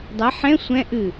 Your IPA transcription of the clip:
dˤɐ ħɛ̃ sʷɛ̃ ʔɨ

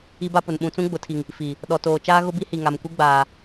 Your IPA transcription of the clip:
i˦ba˦pʊ˨n ɓũ˨t͡sũ˦ɡ͡bʊ˨tʰi˨ŋ | fi˨ | ɗɔ˨toː˨t͡ʃaː˦ ɣʊ˦bi˦hi˨ŋa˨m kʷi˦ɡ͡baː˨

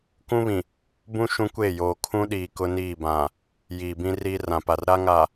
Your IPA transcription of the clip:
kũ˦βĩ˨ | bũ˦ ʃũ˦kʷeː˦˨joː˨ kʰũ˦ɗiː˨ kʊ˦niː˦˨bã˨ | jiː˨ bĩ˦ riː˦rã˨pa˨r ɾa˦ŋa˨

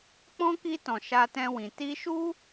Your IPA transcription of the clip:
k͡pɔ̃˦ki˧tɔ̃˨ ʃa˧tɛ̃˧wĩ˨ ti˧ʃu˦

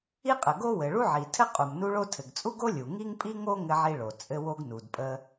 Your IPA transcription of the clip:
i˥qʼə˩ɡo˥wɘ˩ ɭu˥ʕi˩tʰɘ˥ qʼu˩mnu˥ɭo˥ tʰɘ˩ɡt͡sʼu˥ɡo˥ lʲu˩ŋi˥ŋpʼi˥ŋo˥ ŋɘ˥ʕi˥ɭo˩ t͡sʼɘ˥ wo˥ɡnu˩dpʼə˥

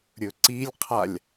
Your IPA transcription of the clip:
ɾʲɵǀilʲqʰalʲ

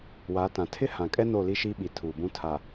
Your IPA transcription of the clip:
wa˨˦tã˨ tʰɪ˦hã˨kʼɛ˦ no˦˨li˦ʃiː˦ɓi˨ tʰuː˨bũ˦ tʰa˨

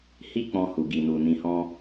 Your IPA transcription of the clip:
hi˦k͡pɔ̃˧ hu˨ɡi˨nu˨ nĩ˧hɔ̃˦

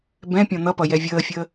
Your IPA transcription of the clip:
bɛ̃ pʲɔ̃n̪ʌpʌ jɛvʲəːfʲəː

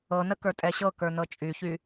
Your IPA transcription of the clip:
ɤnə kə˞tʼɛɕɤkə˞ nɤt͡ʃʼyçy

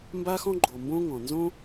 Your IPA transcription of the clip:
mba˦xɔ̃˦ ɡ͡ǃo˨ mbõ˦ŋɔ̃˨ nzõ˦

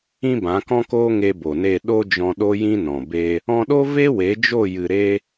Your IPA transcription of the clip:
ĩ˦bã˨˦kɔ̃˦koː˦ ŋe˧bo˨ne˦˨ ɗo˧ d͡ʒɔ̃˧ɗo˦jĩ˦nɔ̃˨ be˧ | ɔ̃˧ɗo˦ ve˦we˨˦d͡ʒo˦˨ jɨ˨ɾe˧

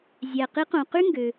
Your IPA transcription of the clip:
zʲæ˩qi˧˥ qõ˩qy˥ ŋɡø˩

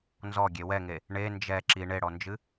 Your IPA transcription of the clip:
nzɔɡʲe wɛŋe | ɳe nd͡ʒɛ ǁi ɳeɽɔnd͡ʒɨ

